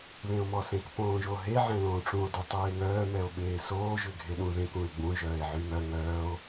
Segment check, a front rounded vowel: present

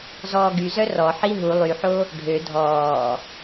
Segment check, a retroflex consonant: present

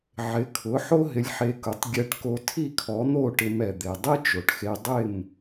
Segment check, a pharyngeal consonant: present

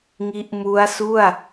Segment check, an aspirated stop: absent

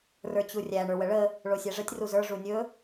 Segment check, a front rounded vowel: absent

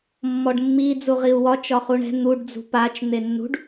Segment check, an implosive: absent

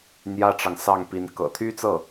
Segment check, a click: absent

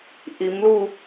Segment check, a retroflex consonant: absent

